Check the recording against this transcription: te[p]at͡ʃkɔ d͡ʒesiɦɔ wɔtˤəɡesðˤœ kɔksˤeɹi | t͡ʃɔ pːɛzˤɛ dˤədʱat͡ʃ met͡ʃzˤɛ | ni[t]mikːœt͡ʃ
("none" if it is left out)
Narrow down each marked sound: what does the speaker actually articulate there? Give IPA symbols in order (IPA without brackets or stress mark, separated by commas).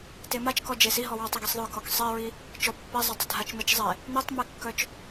m, tˤ